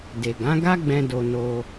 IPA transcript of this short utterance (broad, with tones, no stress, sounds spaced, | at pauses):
d e˨ ɡ ã˨˦ ɡ a˦ ɡ͡b ɛ̃˦ d o˧ n o˧